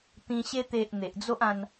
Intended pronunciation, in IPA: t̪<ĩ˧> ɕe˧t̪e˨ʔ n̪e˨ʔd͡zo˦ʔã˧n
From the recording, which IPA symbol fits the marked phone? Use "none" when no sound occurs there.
ĩ˧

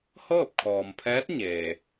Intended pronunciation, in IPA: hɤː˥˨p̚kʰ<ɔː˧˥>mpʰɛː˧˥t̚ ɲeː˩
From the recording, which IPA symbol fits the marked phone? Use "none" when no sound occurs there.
ɔː˩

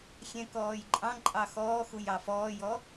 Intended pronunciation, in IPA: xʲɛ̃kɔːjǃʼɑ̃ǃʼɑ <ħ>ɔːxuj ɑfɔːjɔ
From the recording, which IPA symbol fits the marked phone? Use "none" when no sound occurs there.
x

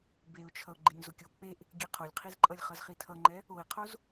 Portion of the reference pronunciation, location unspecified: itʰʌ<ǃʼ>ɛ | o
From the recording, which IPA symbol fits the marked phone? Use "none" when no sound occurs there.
ŋ͡ǃ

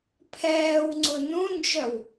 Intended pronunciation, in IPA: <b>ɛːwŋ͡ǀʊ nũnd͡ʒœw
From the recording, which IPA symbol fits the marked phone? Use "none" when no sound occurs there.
pʰ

